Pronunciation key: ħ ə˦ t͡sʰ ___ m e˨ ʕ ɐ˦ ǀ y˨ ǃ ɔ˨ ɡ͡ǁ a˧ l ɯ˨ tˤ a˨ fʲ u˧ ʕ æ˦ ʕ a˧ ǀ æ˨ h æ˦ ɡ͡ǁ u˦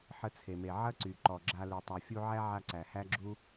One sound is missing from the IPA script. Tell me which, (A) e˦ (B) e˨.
B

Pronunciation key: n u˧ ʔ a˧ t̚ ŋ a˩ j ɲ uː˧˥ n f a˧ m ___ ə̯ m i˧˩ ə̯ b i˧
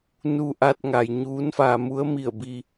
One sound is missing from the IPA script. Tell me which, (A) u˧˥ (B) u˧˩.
A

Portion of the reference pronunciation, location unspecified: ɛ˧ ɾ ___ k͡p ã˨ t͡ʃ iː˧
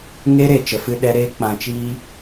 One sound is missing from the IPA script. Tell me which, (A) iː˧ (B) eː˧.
B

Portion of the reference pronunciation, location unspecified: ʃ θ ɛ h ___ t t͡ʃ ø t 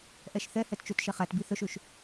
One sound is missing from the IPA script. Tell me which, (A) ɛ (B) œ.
A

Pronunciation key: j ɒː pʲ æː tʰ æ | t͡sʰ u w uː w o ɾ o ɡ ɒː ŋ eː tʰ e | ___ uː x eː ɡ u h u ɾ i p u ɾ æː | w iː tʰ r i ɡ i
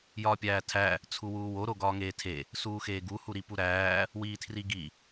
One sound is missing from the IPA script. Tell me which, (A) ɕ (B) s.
B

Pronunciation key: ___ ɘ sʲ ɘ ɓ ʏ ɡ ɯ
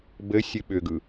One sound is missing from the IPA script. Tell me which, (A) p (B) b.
B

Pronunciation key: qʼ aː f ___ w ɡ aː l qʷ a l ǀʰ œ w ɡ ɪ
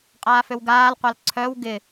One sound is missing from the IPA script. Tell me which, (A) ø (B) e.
A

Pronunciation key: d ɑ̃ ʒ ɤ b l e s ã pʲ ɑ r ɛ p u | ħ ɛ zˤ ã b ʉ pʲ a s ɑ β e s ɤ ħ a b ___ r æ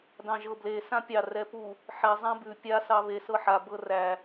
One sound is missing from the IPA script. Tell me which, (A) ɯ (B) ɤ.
B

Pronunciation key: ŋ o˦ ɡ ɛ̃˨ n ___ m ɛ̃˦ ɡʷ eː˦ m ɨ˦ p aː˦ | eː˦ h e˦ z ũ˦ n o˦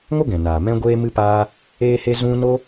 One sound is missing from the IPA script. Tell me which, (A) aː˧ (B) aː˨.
B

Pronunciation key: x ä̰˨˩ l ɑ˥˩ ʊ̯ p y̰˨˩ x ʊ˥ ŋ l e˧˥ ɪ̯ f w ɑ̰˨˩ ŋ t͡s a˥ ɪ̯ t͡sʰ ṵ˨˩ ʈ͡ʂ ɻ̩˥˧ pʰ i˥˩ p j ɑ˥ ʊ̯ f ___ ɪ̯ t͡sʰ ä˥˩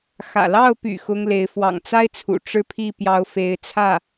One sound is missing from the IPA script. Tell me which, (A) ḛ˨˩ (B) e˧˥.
B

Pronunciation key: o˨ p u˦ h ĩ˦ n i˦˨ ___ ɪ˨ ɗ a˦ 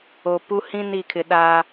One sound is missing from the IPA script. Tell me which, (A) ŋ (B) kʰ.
B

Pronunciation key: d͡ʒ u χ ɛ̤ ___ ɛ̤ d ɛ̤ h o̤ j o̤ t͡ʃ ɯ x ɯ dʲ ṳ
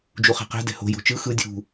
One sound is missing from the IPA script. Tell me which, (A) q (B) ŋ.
A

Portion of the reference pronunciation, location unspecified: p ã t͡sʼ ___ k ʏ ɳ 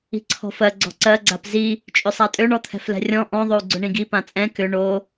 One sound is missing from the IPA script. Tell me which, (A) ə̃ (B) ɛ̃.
B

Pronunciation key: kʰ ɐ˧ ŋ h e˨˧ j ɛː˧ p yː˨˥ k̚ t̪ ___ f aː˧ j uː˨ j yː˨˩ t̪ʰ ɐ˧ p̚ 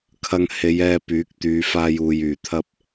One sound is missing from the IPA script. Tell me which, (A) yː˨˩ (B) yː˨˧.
B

